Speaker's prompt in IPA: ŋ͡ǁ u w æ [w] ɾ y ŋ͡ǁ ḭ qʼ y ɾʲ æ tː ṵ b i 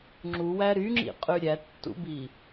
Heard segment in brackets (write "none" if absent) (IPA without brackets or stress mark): none